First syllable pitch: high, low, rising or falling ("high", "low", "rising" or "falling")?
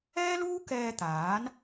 high